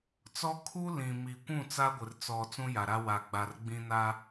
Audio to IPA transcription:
t͡s ɔ˦ kʰ u˦ l ĩ˨ m i˨ kʷ ũ˦˨ t͡s a˦ ɡʷ ɪ˨ r t͡s ɔ˨ t͡s ũ˦ j a˨ ɾ a˦ w a˨ ɡ͡b a˨ r ɡ͡b ĩ˦ n a˦

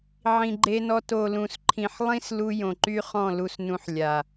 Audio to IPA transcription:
ʕ ĩ˨ ɡ͡ǃ e˧ n ɔ˧ t o˨ l ũ˨ s ǃʰ ĩ˨ ħ lˠ ĩ˦ s l u˧ j õ˨ ǃ y˦ χ ɔ̃˦˨ l u˧ s n ũ˧ ħ lʲ a˨

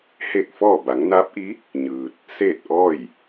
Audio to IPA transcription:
h eː˥˨ k̚ f ɔː˥˨ b a˩˧ ŋ n aː˧˥ p̚ ʔ i˧˥ | ɲ ɯː˧ t̚ | s eː˥˨ t̚ ʔ ɔː˥˨ j

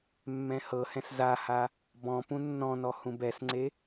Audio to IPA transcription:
mː ɛ̃ h ɤ h ɛ̃ s z a h a | b ɔ̃ p ũ nː ɔ̃ n ɔ h ũ b ɛ s ŋ͡ǀ e

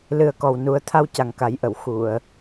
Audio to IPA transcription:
l ɨ˨˩ ə̯ k ɔ˨˩ w n u˨˩˦ ə̯ t̪ʰ a˧ w c a˨˩ ŋ k a˨˩˦ j ʔ ə˨˩˨ w x u˨˩˨ ə̯

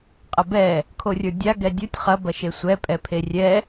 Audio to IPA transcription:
qʼ ɐ b ɛ | kʰ o rʲ ə˞ dʲ a ɡ ɛ dʲ o tʲ χ ɐ b ɐ ʃ e sʷ ɛ pʼ ɛ pʰ e rʲ ɛ

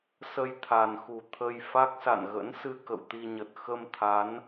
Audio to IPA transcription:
s ə˧ j t̪ʰ a˨˩ n x u˨˩ t̪ʰ ə˧ j f a˦˥ k̚ s a̰˧˨ n ɣ ə̰˧˥ n s ɨ˧ k ə̰˧˨ w t̪ i˧ ɲ ə˨˩ t̚ x ə˧ m t̪ʰ a˨˦ n

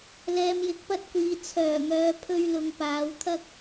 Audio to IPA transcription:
l ɛː˨ m j ɪ˨˥ k̚ p ɐ˥ t̚ kʷ iː˨ t͡sʰ œː˨˩ ŋ œː˨ pʰ ɵ˧ ɥ l ʊ˨ ŋ p aː˨˧ w t̪ʰ ɐ˥ k̚

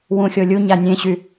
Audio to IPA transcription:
w ũ xʲ o lʲ u ɲ a nʲ ẽ ɕ y

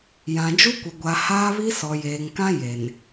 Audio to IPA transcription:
j ã˨ d͡ʒ u˦ kʷ ɪ˨ ɡʷ a˨ h aː˦ β i˦ s ɔ˨ j eː˨ ŋ k ã˦ j e˨ n

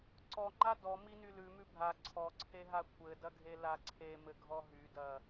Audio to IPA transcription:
ǀ ɔ ŋ͡ǃ a d ɔ m i n y l ʉ m ʉ bʱ a ǀʰ ɔ ǀʰ e ɦ a kʷʰ ɘ d ɐ ɡʱ e l a ǀʰ e m ɘ ɡʱ ɔ ɦ y d ɐ

